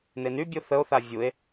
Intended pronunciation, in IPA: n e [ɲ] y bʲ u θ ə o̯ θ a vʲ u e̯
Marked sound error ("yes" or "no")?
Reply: yes